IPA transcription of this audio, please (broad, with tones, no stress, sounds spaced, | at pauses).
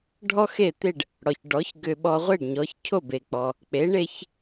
ɖʱ ɔ˥ x e˥˩ t̪ e˥˩ ɖ | ɽ ɔ˩ ç ɖ ɔ˩˥ ç ɡ ʏ˧ ɓ ɔ˧ ʁʷ e˥˩ ɖ ɲ ɔ˩˥ ç cʰ o˥˩ b e˩ k͡p ɔ˩ | k͡p e˩˥ ɳ e˧ ç